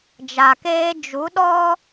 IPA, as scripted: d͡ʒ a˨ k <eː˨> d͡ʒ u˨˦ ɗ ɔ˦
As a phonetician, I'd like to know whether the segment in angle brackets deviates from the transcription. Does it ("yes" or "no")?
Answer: yes